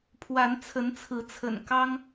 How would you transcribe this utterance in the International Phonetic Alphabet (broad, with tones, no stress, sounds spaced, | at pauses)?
pʰ w a˨˦ n t͡sʰ ə˨˦ n t͡sʰ ɹ̩˨˦ t͡sʰ ə̰˨˩ n k ɑ˦ ŋ